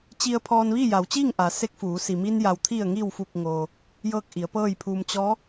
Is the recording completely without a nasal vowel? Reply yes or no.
yes